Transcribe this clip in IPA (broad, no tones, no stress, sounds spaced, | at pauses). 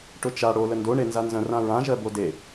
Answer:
ʈ ʊ t͡ʃ a ɽ o l ə n d o ɳ e n z a n z ə̃ r ã ɹ ã ʒ ɜ b o d e